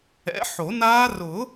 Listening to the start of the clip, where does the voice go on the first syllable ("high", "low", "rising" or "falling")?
rising